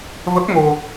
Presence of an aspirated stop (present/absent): absent